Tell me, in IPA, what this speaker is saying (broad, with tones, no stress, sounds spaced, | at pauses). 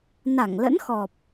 n a˧˩ ŋ l ə̰˧˥ n x ɔ˨˩ p̚